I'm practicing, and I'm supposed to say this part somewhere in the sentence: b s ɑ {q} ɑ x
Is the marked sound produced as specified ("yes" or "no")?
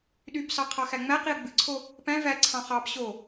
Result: no